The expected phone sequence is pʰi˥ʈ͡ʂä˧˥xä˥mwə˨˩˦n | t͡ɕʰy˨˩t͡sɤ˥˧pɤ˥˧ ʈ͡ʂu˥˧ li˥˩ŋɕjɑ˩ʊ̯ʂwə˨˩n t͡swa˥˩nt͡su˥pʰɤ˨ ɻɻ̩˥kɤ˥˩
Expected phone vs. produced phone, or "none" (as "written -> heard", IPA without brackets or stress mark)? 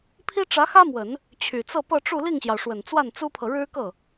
none